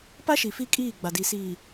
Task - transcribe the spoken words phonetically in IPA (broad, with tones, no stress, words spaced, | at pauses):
pa˦ʃi˨ fi˦kʼiː˦˨ ɡ͡ba˨di˨siː˨